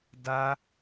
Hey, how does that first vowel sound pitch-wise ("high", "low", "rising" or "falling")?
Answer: high